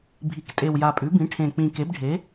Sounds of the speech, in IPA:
bʱi˩˥ktʼe˨˩wja˨˩pʼʉ˩˥ bĩ˩˥ʈʰẽ˨˩k͡pĩ˨˩ke˩˥b ɖʱe˩˥

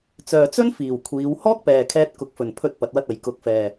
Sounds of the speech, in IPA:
t͡sœː˨t͡sɵ˥nfiː˨˩w kʷʰiː˨˧w hɔː˥k̚pɛː˨kʰɛː˧t̚ kʊ˨˥k̚fɵ˨n pʰɵ˥t̚pɐ˧t̚wɐ˥t̚ɐ˨j kʊ˨˥k̚fɛː˨

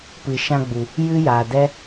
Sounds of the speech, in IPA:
pɨ˨ʃã˧ɡ͡bu˨ | jɨ˦jaː˨dɛ˦

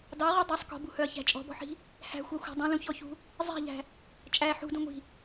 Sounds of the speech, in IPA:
dɑʁy dˤysˤ kɔ̤bṳhœɐ̯çæ̤ t͡ʃʼɔ̤bɔ̤ħi̤ | hæ̤xʷɑxʷæ̤ dˤĩlũçɔçṳ | zˤæ̤ʎæ̤ | t͡ʃʼæ ħṳdũŋʷi̤

